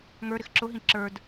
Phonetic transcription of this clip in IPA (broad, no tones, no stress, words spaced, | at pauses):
ŋə˞ɾɪx ǁʊɦĩ ǁə˞d